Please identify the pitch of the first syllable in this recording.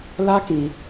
high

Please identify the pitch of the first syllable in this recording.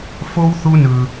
high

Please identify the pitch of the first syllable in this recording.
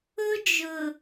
high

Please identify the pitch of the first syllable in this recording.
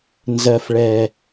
low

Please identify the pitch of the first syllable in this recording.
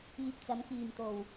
low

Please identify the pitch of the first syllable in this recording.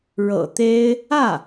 low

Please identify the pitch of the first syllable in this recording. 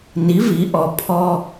rising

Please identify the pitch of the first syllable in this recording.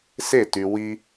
falling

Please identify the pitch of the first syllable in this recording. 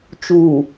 low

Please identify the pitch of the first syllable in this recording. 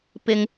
high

